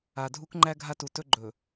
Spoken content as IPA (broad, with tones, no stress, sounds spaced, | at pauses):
a˨ dʱ u˦ k ŋ͡ǃ æ˦ ɡʱ a˦ t u˨ t ɵ˦ ɡ͡ǃ ɵ˨